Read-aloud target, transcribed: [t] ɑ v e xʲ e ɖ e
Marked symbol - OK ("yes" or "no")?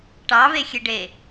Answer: no